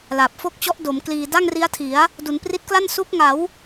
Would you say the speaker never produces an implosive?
yes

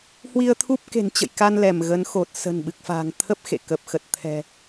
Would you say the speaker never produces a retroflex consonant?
yes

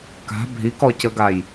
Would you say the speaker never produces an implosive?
yes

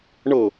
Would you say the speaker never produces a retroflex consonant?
no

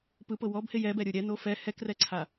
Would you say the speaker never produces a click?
no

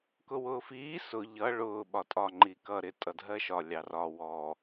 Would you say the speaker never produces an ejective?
no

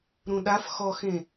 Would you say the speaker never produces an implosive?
no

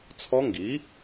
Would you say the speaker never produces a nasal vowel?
yes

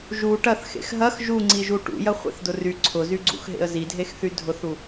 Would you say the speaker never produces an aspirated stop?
no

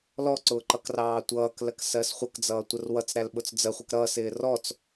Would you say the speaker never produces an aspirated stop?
yes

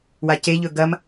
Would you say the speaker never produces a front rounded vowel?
yes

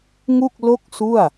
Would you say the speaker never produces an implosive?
yes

